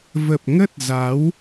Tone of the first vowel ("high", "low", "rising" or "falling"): low